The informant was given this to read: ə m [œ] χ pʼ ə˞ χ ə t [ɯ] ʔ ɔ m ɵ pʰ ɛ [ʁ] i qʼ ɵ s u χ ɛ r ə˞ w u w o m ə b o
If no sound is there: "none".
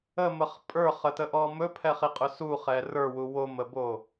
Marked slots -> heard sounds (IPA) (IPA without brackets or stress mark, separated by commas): ə, ə, χ